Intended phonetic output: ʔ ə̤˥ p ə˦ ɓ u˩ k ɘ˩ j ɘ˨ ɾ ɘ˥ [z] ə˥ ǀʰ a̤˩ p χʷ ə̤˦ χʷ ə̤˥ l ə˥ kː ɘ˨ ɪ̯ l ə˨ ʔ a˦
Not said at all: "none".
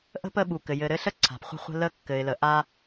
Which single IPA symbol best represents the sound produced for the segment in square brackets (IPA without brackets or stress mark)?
ɬ